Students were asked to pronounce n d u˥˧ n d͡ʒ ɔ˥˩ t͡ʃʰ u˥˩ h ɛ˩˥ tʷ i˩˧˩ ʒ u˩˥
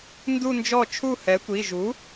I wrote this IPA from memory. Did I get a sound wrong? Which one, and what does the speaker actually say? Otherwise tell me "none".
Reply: none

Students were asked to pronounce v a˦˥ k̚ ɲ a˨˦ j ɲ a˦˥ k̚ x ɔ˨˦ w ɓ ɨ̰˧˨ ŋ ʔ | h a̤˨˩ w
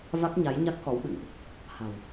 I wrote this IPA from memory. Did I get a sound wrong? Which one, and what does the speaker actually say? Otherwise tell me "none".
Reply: none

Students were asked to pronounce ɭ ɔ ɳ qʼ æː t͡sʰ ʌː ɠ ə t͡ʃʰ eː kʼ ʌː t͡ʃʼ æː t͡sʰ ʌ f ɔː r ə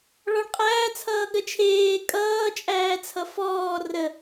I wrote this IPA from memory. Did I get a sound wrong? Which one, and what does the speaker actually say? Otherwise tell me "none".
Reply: none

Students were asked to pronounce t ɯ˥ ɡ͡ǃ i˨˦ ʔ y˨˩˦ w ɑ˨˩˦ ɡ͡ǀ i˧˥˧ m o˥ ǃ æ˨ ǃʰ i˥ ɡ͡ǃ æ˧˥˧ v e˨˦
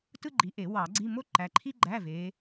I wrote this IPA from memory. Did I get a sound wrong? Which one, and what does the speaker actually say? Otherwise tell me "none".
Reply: y˨˩˦ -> e˨˩˦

